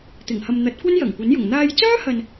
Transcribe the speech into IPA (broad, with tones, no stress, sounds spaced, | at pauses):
t̪ ɪ˨˩ ŋ h ɐ˨ m n̪ ɐ˨˥ t̚ kʷ ɐ˥ n j ɐ˨˩ ŋ kʷ ɐ˨˥ n j ʊ˨˩ ŋ n̪ aː˧ j t͡s œː˥ h ɐ˨ n